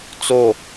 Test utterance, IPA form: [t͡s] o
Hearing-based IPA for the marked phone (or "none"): t͡s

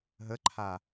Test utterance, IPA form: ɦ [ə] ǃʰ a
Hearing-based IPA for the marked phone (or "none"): ə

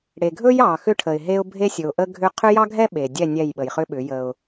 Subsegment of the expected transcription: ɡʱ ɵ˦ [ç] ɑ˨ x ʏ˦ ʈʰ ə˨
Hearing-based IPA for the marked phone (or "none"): j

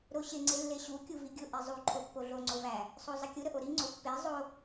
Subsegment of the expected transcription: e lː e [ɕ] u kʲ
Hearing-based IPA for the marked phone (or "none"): ɕ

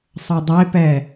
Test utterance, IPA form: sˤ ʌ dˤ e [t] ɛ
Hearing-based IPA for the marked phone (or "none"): p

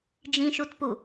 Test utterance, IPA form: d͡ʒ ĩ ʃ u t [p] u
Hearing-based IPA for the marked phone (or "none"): p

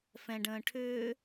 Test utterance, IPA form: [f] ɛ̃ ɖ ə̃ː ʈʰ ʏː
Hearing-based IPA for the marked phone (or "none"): f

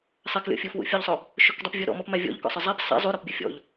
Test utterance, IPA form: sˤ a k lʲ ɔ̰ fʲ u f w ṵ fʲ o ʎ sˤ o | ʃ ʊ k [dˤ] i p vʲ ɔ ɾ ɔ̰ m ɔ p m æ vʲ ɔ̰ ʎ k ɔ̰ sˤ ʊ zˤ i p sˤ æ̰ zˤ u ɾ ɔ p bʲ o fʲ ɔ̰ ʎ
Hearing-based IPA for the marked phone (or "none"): dˤ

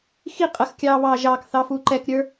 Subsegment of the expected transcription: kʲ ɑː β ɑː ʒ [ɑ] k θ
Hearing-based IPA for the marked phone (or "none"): ɑː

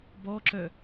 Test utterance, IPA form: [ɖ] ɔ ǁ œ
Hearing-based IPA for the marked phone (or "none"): b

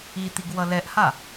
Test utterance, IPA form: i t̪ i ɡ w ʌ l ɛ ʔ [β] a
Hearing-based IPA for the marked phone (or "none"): h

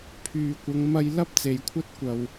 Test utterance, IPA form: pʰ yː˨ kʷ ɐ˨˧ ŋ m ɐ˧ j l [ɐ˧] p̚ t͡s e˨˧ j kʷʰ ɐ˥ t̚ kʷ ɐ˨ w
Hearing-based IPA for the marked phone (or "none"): ɐ˥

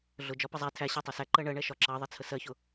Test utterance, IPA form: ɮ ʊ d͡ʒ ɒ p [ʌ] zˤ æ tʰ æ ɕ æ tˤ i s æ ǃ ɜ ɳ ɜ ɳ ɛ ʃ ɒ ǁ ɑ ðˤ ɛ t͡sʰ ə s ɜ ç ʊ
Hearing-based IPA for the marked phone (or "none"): ʌ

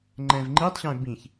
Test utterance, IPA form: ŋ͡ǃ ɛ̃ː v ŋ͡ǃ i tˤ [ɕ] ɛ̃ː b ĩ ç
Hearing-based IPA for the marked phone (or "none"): ɕ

